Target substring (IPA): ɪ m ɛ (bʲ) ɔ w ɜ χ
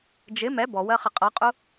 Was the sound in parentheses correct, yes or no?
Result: no